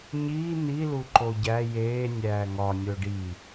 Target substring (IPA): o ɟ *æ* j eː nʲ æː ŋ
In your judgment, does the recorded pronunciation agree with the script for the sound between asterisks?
yes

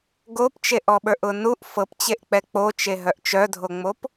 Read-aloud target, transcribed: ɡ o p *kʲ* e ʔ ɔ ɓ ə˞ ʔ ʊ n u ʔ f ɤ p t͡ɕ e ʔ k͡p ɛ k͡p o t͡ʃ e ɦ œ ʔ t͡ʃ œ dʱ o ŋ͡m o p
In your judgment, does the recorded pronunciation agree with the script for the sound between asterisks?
no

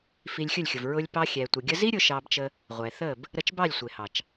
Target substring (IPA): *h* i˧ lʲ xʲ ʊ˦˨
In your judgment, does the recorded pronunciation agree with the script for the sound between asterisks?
no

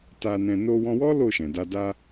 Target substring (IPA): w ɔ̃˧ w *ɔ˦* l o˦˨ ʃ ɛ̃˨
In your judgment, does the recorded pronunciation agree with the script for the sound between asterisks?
yes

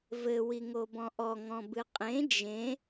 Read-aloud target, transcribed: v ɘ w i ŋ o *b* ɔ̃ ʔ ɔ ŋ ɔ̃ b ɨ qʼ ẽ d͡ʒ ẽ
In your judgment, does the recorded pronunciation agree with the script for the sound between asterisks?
yes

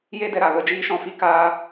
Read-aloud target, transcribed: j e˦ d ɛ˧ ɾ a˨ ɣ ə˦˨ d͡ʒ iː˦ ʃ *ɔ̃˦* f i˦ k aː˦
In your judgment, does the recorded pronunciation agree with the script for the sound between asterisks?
no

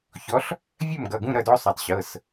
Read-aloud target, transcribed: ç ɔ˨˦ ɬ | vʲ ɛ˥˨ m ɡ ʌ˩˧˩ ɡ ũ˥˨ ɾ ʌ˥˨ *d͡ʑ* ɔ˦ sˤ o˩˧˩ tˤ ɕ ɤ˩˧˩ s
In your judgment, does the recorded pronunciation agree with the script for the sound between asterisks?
no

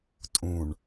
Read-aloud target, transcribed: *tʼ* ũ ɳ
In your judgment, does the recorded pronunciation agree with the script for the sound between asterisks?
yes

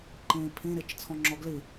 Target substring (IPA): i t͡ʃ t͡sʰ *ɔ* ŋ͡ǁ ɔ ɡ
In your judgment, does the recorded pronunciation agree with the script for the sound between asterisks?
no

